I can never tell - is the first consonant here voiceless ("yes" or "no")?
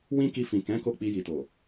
no